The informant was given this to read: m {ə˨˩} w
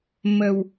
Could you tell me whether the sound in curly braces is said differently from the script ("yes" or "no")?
no